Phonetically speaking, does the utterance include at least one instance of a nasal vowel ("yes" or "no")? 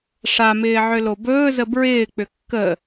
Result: no